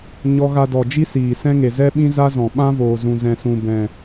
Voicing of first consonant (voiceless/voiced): voiced